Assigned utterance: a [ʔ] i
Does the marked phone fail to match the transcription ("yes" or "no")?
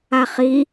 yes